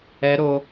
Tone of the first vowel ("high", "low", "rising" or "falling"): rising